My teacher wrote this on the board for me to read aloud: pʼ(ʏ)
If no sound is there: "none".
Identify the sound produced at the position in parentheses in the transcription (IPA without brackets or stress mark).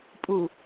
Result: u